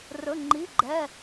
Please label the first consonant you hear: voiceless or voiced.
voiced